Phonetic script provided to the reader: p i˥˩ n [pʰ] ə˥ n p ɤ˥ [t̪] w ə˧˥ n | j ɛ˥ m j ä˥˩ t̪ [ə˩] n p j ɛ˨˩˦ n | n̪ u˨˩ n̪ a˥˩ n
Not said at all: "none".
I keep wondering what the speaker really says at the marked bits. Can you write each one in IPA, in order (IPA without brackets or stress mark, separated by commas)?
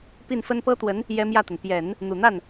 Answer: f, t̪, ə˩